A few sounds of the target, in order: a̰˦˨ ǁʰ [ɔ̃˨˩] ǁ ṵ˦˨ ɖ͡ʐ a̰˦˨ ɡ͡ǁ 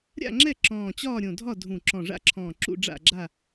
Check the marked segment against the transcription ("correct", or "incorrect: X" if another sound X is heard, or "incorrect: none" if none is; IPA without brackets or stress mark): incorrect: ɔ̃ː˨˩